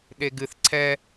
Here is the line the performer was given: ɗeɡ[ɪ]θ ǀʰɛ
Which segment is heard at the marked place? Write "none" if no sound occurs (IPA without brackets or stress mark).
ɨ